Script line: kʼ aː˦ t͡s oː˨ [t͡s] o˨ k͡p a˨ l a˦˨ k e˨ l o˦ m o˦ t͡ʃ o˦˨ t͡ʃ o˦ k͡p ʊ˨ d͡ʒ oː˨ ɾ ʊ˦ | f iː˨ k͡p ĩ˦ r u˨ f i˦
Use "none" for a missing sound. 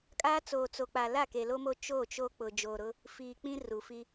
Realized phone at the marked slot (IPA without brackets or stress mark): t͡s